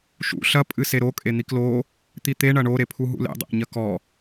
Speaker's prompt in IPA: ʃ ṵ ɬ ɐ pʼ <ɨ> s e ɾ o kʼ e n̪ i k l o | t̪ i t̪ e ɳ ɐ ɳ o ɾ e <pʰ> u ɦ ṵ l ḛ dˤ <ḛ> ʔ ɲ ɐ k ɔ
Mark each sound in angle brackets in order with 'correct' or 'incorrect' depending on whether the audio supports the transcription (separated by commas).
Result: correct, correct, correct